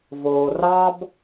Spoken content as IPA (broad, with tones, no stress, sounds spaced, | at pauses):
v oː˩ r ɑː˦ b